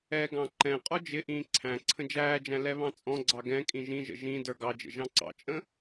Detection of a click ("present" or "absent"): present